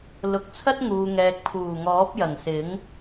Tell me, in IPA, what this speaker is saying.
l ʊ˨˥ k̚ t͡sʰ ɐ˥ t̚ ŋ uː˨ ŋ ɛː˨ k̚ pʰ uː˨˩ ŋ ɔː˨˥ p̚ j ɐ˨˩ ŋ s ɪ˨˥ ŋ

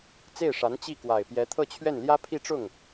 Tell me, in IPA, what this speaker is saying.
t͡s e˥˩ ɪ̯ ʂ a˧˥ n t͡ɕ i˥˩ k w a˨˩ ɪ̯ p j ɛ˧˥ t̪ʰ ɤ˥˧ t͡ɕʰ ɥ ɛ˥˩ n l j ä˥ pʰ i˥˧ ʈ͡ʂ ʊ˥˩ ŋ

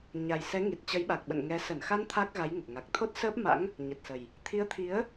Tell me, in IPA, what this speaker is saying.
ɲ a˨˩ j s ɛ˨˦ ŋ i˨˩ t̚ t͡ɕ ə˨˦ j ɓ a˨˩ k̚ ɓ ə̰˧˨ n ŋ ɛ˨˦ s ə˧˩ n x a˧ n t̪ʰ a˦˥ k̚ ɣ a˨˦ j ŋ ə˨˩ p̚ ŋ a˨˩ k̚ t̪ʰ o˦˥ t̚ s əː˦˥ p̚ m a̰˧˥ ŋ | ɲ ə˨˩ t̚ s ə˨˩ j | t̪ʰ i˨˦ ə̯ t̪ʰ i˨˦ ə̯

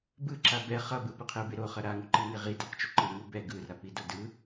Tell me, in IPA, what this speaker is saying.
b ɯ ǁ a b ɛ χ ʌ b ɯ p u qʰ e u̯ b e ɾ o χ ʌ ɾ a ŋ u ǃ i ŋ e ʁ i d ɛ q t͡ʃ u ǃ ɯ ŋ u b ɛ ɡ ɯ r a p i d o d ɯ

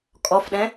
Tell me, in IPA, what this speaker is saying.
kʼ ɔ f ɗ ɛ̃

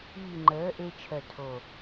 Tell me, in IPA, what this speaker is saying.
y˨˩ ŋ͡ǃ əː˩˧ ʔ e˧ t͡ʃʰ œ˨˩ tʰ o˨˩

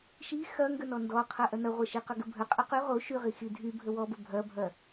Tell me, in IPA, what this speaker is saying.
ʃ i x ɐ ŋ ɡ ə n ɔ n d ɔ qʰ ɐ ʔ ɐ n ɐ ʁʷ ɐ ʃ i q ɐ ɡ ə bʱ ə qʼ ɐ q y ʁ o ʃ y ʁ i x i dʱ y bʱ ə w ɔ b ə bʱ ɐ bʱ ɐ

